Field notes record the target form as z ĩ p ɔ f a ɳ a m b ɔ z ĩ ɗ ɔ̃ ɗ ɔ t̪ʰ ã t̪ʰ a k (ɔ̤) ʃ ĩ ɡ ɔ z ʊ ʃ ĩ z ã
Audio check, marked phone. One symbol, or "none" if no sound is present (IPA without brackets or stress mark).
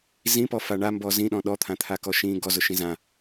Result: ɔ